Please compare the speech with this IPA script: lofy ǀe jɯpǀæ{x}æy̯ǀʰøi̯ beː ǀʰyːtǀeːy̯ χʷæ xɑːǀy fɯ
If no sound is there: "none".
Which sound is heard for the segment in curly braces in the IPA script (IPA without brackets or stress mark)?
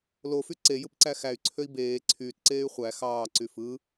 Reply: x